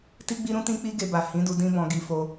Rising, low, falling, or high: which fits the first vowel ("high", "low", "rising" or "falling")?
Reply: high